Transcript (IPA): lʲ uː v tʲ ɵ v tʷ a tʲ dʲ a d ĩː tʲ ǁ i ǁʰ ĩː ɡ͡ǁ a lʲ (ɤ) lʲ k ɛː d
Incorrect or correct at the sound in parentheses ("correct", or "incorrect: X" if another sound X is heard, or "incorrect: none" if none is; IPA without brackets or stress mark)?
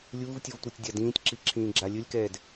incorrect: ɵ